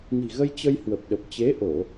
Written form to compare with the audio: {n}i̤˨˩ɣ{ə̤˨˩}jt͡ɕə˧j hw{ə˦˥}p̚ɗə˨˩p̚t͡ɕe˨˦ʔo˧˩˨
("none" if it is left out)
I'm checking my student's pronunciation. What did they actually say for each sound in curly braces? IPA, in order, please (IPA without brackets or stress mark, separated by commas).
n, ə˧, ə˨˩